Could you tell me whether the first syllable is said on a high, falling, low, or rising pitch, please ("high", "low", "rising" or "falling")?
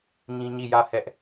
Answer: high